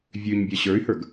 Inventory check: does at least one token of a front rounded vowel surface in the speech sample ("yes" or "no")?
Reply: yes